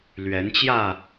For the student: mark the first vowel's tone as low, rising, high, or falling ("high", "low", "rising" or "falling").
rising